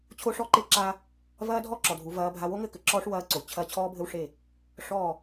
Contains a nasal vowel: no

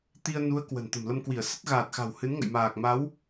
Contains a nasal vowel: no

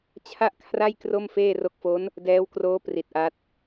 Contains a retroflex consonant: no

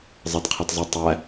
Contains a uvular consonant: yes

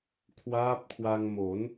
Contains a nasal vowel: no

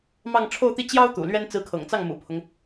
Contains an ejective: no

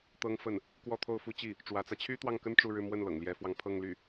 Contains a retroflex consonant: yes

